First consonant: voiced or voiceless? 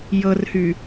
voiced